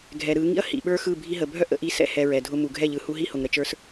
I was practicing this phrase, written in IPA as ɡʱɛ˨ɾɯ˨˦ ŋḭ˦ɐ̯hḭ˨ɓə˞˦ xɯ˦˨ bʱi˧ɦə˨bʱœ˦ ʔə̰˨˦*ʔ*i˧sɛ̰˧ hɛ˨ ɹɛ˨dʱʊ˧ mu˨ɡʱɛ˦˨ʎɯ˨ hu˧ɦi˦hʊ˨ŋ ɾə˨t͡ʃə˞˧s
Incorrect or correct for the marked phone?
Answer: correct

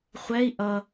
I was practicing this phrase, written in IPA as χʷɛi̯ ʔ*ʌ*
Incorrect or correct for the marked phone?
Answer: correct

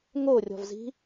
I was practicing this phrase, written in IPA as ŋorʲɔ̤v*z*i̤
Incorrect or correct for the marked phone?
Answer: correct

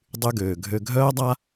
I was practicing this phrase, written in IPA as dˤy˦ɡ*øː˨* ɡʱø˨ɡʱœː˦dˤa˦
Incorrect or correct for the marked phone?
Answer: correct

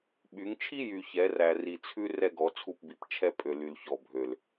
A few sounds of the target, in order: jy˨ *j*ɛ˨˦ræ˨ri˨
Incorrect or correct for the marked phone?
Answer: incorrect: ç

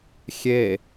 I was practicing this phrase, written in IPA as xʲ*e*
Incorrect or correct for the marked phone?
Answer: correct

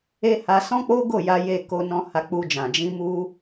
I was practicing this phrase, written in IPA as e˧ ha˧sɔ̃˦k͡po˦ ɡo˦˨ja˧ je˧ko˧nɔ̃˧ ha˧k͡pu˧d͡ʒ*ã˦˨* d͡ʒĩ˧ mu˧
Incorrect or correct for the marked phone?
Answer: incorrect: ã˨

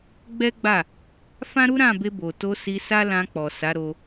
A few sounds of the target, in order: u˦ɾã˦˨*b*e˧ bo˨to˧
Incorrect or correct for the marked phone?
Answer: correct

